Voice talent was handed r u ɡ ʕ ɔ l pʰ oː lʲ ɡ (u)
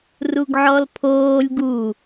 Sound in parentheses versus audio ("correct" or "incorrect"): correct